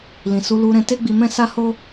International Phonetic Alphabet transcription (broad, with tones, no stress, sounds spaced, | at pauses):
l ĩ˨ s u˨˦ l u˧ ɾ ɛ̃˧ t e˦ ɡ͡b i˧ m ɛ̃˦ s a˦ h o˦